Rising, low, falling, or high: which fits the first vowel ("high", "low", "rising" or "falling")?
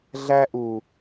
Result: high